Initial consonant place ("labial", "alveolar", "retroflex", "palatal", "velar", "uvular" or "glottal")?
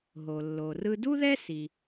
glottal